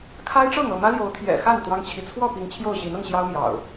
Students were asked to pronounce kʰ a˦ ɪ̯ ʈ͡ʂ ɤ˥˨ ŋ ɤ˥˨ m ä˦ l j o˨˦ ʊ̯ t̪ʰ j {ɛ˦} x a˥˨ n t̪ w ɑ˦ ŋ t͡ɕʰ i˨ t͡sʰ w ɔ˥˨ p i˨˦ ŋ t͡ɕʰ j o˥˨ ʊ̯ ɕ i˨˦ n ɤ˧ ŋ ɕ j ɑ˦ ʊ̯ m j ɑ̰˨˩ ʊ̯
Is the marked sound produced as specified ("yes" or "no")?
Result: no